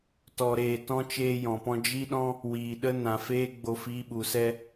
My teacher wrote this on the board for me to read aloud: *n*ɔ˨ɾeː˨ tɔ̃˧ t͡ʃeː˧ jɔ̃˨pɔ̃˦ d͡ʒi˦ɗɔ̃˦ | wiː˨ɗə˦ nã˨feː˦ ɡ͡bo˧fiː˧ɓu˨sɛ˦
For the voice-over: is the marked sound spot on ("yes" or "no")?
no